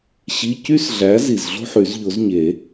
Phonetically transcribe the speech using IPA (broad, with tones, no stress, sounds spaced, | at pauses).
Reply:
ɕ i˧˥˧ c y˥ s ɮ æ˨˥ z i˨˩ z ɮ o̤˥ ħ y˨˩˦ z ʎ o˨˥ z ɲ e˨˩˦